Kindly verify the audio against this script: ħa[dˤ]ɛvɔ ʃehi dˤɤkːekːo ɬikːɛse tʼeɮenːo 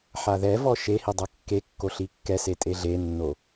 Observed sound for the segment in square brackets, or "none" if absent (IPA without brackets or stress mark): ð